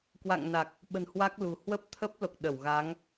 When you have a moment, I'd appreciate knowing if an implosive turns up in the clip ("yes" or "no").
yes